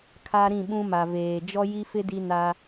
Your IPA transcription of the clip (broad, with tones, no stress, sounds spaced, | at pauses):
kʰ a˦ ɾ ĩ˦˨ ɓ ũ˦ m a˨ v eː˨ d͡ʒ ɔ˦ j i˦ f ɪ˦ d i˦ n a˦